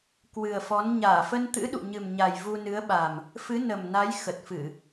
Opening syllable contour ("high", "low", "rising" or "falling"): low